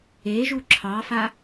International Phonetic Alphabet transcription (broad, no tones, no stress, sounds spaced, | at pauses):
e ʒ u ǁʰ ɑ f a